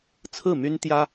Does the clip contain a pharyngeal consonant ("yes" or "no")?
no